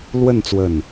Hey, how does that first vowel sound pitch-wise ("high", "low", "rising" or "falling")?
falling